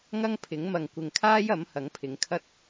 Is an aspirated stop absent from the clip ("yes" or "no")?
no